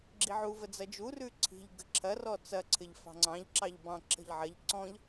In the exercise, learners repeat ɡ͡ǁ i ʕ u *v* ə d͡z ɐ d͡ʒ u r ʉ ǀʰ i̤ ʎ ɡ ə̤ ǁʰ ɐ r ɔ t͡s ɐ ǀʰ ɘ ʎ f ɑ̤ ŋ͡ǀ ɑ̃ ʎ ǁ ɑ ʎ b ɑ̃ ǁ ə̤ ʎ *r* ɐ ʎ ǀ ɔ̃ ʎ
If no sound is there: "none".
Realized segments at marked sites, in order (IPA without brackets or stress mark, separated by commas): v, ʕ